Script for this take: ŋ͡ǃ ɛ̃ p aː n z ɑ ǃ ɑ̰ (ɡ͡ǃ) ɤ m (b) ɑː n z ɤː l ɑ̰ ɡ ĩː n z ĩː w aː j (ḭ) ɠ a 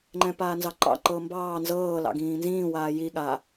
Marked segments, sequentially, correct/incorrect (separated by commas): incorrect, correct, incorrect